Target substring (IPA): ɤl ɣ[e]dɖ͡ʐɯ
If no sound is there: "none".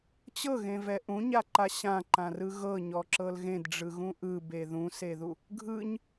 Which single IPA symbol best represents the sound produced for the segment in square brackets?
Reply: ẽ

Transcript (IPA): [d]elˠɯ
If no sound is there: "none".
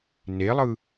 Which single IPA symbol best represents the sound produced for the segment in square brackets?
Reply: n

